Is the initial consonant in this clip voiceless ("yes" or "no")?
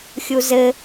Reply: yes